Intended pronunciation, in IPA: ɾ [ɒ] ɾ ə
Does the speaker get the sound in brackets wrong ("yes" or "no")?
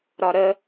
no